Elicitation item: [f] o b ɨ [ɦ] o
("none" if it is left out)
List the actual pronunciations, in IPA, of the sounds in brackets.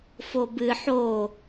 f, ħ

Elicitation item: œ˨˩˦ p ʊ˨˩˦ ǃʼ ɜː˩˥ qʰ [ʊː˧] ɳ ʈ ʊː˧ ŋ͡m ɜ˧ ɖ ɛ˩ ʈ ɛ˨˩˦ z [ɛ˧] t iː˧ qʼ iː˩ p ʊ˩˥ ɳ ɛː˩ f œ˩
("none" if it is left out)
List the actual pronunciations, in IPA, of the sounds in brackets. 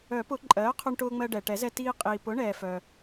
ʊ˧, ɛ˧

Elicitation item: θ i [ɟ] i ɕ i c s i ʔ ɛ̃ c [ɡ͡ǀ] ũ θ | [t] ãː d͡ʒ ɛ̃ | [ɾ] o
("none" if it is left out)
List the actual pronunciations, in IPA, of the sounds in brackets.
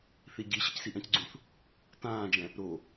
ɟ, ɡ͡ǀ, t, ɾ

